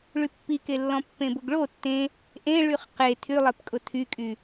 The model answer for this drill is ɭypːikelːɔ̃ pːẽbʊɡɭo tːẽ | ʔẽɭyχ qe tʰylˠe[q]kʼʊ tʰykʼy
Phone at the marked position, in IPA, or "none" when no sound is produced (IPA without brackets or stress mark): p